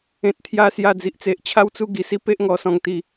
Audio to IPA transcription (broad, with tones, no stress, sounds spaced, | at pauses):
ẽ˨ t̚ t̪ʰ j a˧ s j a˧ d͡z i˨ ʔ t͡s e˨ ʔ t͡ɕʰ a˦ w t͡s u˦ ɡ i˨˩ s i˦ p e˦ ʔ ŋ ɔ˧ s ɔ̃˧ ŋ t̪ i˧